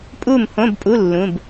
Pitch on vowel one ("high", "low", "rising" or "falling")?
falling